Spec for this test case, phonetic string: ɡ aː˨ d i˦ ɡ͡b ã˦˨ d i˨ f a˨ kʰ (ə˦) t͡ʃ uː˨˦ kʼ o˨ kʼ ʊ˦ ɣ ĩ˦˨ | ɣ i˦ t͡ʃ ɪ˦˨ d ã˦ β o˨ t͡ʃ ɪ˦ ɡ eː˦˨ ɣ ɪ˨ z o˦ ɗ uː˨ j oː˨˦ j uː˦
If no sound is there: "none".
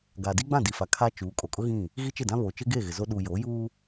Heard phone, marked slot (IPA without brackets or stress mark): a˦